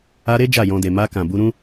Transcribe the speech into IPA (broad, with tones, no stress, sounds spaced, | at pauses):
a˧ ɾ e˦ d͡ʒ a˦˨ j ɔ̃˧ d e˨ m a˧ k ã˨ b u˧ ɾ ũ˦